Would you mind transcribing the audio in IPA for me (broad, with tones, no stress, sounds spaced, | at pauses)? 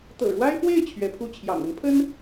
t̪ ɤ̰˨˩ ɻ w a˥ ɪ̯ p w e˥˩ ɪ̯ t͡ɕʰ ɥ ɛ˧˥ pʰ u˥˩ t͡ɕʰ j ɑ̰˨˩ ŋ ə˧˥ n pʰ ə˥ n